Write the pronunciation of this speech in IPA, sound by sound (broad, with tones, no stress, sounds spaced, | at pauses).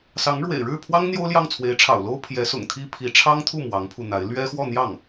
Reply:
s ɑ˧˥ ŋ ɻ w ḛ˨˩ ɪ̯ ɻ ɻ̩˥˩ pʰ w ɑ˥ ŋ n̪ j o˥ ʊ̯ l j ɑ˥˩ ŋ t͡sʰ w e˧˥ ɪ̯ ʈ͡ʂʰ ɑ̰˨˩ ʊ̯ l o˥ ʊ̯ pʰ j ɛ˧˥ s ʊ̰˨˩ ŋ t̪ʰ i˥ pʰ i˧˥ ʈ͡ʂʰ ɑ˥ ŋ t̪ʰ u˥˩ m w ɑ˧˥ ŋ pʰ u˧ n̪ a˧˥ ɪ̯ l ɥ ɛ˥ x w ɔ˥˧ n̪ j ɑ˥˩ ŋ